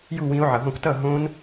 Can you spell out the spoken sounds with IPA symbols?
j u˥˩ w ĩ˨˦ o̯ ʕ ʌ˩ ɦ õ˥˩ k t ʌ˥˩ ɦ õ˦˥ n

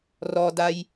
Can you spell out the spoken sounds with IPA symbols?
r ɔ d a j

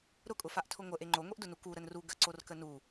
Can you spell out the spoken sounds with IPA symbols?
ɾ ʊ kʼ ʊ f a ʔ tʰ ʊ ŋʷ ə ʔ e ŋ͡ǃ o ŋʷ e ʔ d ʊ n u k u ɾ ə n r u ɡ ə ǀ o r k ə n u

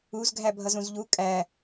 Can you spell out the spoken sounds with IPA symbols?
u z ɡʱ æ bʱ ʌ z ũ z ʎ u kʼ æ

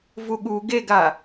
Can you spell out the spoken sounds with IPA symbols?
v u ɠ u ɡ e ɡ a

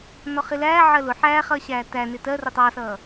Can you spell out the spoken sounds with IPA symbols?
n ɔ χ ɪ l æː ʕ ɜ l ʊ ħ æː χ ʌː ɕ æː t æ n ɪ t ɜ r ʊ tˤ ɑ s ʌː

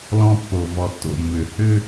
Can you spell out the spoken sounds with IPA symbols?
l ɔ̃˥ pː o˧ v ɔ˧ tː o̰˥˧ mː ʏ˧ h ʏ˥

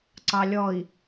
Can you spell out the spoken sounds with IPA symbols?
ǀ ɑ lʲ ɔ i̯

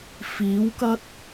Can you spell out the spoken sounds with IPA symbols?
f iː˨˥ w k ɐ˥ t̚

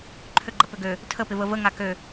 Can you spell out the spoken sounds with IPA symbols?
ǃʰ ø ɡ͡ǃ ɐ p ø ɡ ø | tʰ ə p ɪ v ə v ə ŋ a k ø

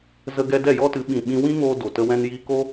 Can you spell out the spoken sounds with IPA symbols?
z ə˧ ɡ ɛ˧ d ɛ˦˨ j ɔ˦ t ɨ˨˦ ɓ ĩ˨ ɓ ĩ˧ w ĩ˦ ŋ oː˧ d o˨ t ə˧ w ɛ̃˧ n j iː˧ k o˦

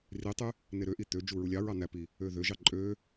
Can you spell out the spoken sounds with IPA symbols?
r i tˤ y | n e ɾ ø ʔ i t̪ ø d͡ʒ u ɹ u lʲ ɑ ɹ ɑ n̪ æ p i | ø ð ø ʒ ɑ ǃʼ ø

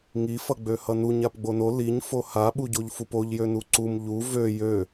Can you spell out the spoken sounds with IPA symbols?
ŋ i f ʌ ɡ͡b ø h ʌ n u ɲ a p ɡ͡b o n o l i ɲ f o h a ɓ u ɟ o ʎ f u p o ʎ j ø n u ǀ u m ʎ u v ø j ø

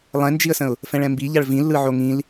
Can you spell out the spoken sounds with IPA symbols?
lˠ ɛ̃ n d͡ʒ i ə̯ s ə̃ ʊ̯ | f ɛ̃ ɭ ɛ̃ m b i ʎ a ɭ v ĩ lː ɯ ʕ o ŋ ĩ l

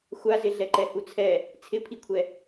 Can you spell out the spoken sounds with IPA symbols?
xʷ a z ɪ ɮ ɛ ǃ ɛ h u t͡sʰ ɛ | t͡sʰ ɪ pʰ i kʷʰ ɛ

